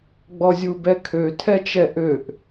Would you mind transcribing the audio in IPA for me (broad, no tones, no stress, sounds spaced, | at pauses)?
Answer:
ɡ͡b ɔ zʲ u b ɛ kʰ ø tʰ ɛ t͡ʃ ɛ ʔ ø ʔ